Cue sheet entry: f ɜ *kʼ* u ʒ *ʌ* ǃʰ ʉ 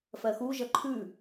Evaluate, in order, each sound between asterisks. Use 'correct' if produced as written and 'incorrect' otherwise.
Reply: incorrect: x, correct

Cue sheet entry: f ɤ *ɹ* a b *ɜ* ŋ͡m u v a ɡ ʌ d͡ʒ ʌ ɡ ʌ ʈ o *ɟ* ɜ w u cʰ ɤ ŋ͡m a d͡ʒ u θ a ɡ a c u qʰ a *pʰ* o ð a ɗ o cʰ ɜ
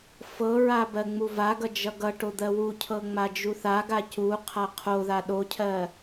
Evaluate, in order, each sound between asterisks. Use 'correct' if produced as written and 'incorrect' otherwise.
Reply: correct, correct, incorrect: d̪, incorrect: qʰ

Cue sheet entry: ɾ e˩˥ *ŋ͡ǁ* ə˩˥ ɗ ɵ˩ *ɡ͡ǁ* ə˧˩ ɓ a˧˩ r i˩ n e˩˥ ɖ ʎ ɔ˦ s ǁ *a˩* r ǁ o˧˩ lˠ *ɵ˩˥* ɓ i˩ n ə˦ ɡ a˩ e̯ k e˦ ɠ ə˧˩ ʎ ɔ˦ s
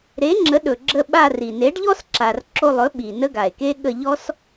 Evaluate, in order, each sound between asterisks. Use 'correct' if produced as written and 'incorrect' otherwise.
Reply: correct, correct, correct, correct

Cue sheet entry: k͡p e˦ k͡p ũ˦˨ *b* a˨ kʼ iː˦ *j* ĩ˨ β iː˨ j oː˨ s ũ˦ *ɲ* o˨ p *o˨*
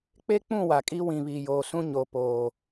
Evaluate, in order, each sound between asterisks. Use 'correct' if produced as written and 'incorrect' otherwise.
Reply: incorrect: w, incorrect: w, correct, incorrect: oː˨

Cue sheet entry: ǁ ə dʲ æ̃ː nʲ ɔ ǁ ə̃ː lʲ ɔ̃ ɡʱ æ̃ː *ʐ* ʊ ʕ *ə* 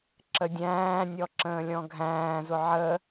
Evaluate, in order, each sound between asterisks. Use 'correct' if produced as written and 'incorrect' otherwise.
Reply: incorrect: z, correct

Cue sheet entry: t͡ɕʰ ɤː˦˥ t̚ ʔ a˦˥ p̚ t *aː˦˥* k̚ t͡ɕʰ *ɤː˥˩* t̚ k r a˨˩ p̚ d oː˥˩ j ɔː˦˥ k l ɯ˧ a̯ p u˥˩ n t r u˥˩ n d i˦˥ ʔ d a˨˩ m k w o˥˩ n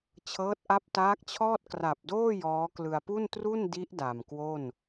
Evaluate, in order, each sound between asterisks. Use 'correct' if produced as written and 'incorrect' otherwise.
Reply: correct, incorrect: ɔː˥˩

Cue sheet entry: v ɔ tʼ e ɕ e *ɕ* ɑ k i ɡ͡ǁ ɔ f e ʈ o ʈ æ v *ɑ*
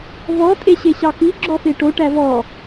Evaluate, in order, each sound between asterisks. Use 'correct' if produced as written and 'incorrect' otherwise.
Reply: correct, incorrect: ɔ

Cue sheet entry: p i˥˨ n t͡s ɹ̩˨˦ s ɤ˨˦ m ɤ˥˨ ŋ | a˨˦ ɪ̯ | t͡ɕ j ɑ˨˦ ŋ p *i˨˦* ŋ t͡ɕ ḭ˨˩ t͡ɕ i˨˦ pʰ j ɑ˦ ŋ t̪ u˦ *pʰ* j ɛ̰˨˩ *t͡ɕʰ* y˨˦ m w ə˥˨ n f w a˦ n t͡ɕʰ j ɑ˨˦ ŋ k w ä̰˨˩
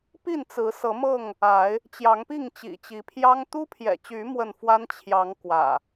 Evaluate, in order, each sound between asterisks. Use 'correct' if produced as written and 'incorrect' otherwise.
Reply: incorrect: i˥˨, correct, incorrect: t͡ɕ

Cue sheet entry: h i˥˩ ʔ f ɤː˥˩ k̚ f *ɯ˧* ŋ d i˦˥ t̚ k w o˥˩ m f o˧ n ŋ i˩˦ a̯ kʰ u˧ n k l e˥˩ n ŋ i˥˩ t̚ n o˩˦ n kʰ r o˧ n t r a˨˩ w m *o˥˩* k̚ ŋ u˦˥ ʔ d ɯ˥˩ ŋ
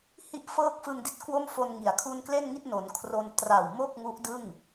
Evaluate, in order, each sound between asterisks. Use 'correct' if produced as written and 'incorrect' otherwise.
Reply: correct, correct

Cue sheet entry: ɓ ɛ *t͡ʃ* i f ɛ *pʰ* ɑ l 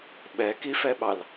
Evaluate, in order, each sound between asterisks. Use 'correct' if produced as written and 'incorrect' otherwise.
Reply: incorrect: k, incorrect: ɓ

